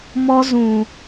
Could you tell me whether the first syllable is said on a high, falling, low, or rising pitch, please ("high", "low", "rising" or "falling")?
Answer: high